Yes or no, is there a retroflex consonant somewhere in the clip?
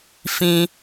no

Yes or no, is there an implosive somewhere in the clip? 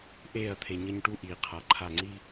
no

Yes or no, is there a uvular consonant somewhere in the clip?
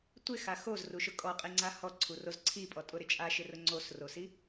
yes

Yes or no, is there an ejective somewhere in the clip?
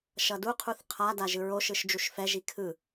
no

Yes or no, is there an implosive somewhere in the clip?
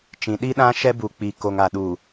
yes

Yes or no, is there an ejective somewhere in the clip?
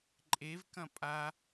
yes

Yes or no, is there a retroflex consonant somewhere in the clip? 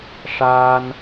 yes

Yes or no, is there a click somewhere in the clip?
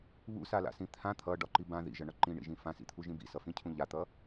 yes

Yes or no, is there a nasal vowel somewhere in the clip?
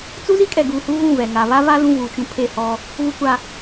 yes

